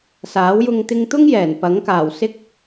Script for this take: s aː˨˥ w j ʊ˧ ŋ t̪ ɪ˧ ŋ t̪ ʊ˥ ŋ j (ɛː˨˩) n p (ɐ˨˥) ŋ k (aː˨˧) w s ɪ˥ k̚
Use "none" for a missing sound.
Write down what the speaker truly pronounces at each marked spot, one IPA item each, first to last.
ɛː˨˩, ɐ˨˥, aː˨˩

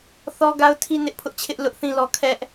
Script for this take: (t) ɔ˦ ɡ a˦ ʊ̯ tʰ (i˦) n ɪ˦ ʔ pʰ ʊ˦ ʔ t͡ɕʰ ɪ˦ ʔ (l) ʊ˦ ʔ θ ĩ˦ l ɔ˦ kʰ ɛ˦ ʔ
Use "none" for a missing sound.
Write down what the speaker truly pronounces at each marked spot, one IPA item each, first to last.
θ, i˦, l

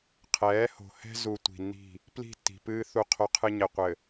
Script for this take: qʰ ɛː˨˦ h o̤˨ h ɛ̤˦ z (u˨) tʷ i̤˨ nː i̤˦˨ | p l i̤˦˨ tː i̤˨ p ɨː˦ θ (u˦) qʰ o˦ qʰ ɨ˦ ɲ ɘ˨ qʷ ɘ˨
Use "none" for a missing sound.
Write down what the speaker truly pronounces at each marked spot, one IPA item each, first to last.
u˨, u˦

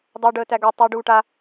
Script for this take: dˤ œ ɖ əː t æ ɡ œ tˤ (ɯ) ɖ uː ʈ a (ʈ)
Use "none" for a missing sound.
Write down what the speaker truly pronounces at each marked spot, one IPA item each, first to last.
u, none

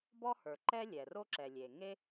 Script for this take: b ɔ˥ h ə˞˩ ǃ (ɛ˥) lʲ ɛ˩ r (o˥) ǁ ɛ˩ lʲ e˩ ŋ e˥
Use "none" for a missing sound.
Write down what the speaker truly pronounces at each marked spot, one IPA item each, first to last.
ɛ˥, o˥

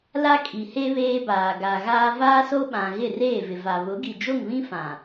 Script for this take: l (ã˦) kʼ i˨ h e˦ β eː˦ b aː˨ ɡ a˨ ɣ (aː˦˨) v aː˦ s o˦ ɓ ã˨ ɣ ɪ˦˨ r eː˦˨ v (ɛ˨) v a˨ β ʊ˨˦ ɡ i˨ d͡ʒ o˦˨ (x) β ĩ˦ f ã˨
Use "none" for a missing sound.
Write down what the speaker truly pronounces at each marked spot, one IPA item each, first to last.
a˦, aː˦, ɪ˨, ŋ

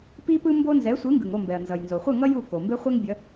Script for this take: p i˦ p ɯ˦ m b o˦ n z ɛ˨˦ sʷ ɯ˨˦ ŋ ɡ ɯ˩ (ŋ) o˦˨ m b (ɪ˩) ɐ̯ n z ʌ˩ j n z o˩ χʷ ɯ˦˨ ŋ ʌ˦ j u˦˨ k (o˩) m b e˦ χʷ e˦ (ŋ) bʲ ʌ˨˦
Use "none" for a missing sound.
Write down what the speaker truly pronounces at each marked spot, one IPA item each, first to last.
ŋ, ɛ˩, o˩, ŋ

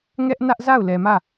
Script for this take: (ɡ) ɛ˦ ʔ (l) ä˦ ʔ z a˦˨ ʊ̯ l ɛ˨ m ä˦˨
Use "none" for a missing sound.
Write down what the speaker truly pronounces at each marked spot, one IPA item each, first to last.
ŋ, n

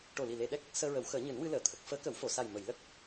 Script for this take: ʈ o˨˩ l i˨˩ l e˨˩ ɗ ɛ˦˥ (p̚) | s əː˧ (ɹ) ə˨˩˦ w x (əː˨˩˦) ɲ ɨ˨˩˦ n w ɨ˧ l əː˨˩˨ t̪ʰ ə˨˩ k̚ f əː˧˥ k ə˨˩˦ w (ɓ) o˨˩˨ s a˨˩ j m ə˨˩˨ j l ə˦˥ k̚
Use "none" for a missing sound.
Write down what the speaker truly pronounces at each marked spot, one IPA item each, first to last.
k̚, ɹ, əː˨˩˦, f

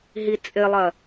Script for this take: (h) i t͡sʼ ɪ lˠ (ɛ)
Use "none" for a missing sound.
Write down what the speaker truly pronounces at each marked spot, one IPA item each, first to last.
ɦ, ɜ

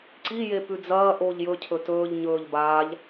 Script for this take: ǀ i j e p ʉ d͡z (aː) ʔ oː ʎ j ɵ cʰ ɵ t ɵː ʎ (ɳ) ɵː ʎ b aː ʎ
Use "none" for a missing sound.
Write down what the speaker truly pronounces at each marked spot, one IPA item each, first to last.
ɐː, ɲ

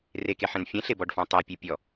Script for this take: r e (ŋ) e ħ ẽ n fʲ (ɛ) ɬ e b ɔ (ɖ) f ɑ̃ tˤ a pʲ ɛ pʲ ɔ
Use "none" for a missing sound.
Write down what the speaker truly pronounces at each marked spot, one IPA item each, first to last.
k, ɛ̃, ɖ

